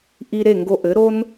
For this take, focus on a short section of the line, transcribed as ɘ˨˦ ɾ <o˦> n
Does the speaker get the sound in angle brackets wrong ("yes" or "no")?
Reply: no